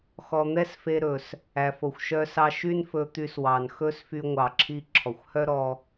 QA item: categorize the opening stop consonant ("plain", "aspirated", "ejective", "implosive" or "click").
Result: plain